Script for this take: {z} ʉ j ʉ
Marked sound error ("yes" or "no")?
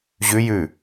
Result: yes